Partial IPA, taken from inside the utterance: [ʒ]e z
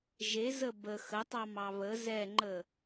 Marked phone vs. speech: correct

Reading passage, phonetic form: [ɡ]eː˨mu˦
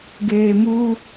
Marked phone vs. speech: correct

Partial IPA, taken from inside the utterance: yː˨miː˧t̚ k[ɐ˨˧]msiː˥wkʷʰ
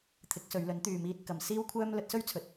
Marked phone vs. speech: correct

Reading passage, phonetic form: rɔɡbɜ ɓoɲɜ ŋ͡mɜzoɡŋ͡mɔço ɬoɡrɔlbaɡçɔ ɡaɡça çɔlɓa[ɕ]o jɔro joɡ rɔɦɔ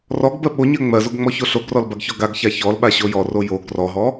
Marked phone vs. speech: correct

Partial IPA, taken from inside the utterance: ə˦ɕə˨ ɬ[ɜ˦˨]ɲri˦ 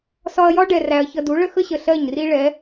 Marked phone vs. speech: correct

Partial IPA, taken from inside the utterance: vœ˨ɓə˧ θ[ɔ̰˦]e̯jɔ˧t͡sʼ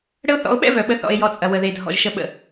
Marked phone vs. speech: incorrect: ɔ̰˧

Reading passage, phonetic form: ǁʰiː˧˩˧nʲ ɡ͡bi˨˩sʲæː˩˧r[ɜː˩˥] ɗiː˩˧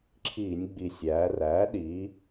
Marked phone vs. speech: incorrect: æː˩˥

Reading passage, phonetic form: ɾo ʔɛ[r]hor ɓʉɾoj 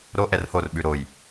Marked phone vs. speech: correct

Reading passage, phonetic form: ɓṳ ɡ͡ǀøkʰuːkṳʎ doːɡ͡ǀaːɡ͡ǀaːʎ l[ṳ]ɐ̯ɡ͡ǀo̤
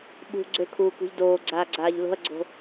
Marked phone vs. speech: incorrect: o̤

